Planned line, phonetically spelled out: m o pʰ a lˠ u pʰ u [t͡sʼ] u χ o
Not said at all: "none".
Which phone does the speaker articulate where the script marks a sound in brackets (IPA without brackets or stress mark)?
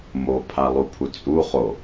t͡sʼ